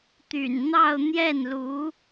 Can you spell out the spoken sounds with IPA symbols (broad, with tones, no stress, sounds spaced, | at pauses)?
t̪ y̰˨˩ n n̪ ɑ˥˧ ʊ̯ n̪ j ɛ˥˩ n l u˧˥